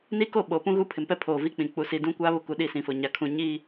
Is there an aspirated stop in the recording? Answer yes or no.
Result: yes